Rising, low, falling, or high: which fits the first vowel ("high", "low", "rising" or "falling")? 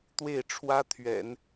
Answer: falling